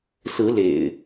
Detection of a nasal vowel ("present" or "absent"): absent